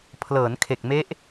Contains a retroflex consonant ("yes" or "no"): no